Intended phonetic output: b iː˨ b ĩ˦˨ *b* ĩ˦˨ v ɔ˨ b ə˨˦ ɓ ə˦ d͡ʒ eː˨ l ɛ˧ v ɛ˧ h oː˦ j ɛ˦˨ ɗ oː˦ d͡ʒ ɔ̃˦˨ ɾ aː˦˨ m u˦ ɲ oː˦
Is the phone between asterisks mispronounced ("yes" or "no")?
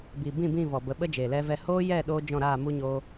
no